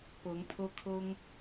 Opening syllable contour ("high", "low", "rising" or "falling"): rising